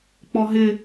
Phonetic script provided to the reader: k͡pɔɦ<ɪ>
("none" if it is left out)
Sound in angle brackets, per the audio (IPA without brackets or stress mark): ɪ